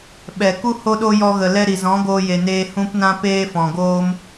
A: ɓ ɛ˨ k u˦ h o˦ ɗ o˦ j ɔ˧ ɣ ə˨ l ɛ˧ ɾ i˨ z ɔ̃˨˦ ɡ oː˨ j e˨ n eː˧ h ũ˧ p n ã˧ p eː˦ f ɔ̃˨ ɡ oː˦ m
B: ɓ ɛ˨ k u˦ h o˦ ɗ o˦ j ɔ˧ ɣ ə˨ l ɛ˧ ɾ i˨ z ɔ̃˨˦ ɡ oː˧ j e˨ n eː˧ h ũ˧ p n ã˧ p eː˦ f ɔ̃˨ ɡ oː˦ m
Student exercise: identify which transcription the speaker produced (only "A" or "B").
B